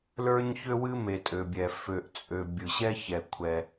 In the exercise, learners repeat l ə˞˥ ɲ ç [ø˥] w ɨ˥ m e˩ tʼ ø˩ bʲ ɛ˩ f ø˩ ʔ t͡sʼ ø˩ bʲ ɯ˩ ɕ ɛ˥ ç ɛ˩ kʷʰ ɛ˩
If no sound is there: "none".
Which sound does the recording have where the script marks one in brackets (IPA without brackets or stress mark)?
ø˥